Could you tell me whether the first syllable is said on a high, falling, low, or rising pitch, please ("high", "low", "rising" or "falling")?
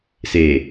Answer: low